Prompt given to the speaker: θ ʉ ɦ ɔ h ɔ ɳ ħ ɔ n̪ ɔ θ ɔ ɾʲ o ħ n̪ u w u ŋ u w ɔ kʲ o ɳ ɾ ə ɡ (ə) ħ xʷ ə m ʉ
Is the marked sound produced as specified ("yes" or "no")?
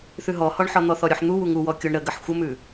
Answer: yes